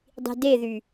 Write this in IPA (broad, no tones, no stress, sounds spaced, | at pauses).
dˤ i̤ d e ð y